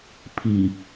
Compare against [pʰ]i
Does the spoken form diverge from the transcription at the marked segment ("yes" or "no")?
no